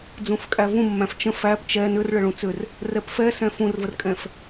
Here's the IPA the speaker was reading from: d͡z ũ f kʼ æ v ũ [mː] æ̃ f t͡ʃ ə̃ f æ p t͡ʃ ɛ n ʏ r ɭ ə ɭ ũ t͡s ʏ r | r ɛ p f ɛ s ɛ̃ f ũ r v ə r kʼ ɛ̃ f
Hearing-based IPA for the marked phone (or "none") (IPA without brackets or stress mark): mː